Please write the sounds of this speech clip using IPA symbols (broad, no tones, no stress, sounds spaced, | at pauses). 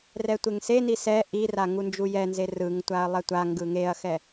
r ɛ tʷ e ŋ s e n i s ɛ ʔ i r a ŋ u n d͡ʒ u j ɛ n z e r ɯ ŋ tʷ a ɐ̯ lˠ ɛ tʷ a ŋ ɡ ɯ ŋ e ɐ̯ x ɛ